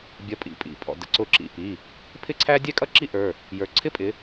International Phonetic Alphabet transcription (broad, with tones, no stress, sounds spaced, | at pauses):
bʲ ʌ˨˦ pʼ ḭ˩˧˩ pʼ ḭ˩˧˩ pʼ ɔ̰˩˧˩ d ə̰˨˦ ǀ ʊ˧˩ ǁ ḭ˧˩ p i˩˧˩ | pʰ ɪ˥ ǀʰ æ˥ dʲ ɛ˥ kʼ ʌ˥ ǁ i˥ ʔ ə˞˩˧˩ | j ə˞˨˦ ǀʰ ɪ˥ pʼ ɪ˨˦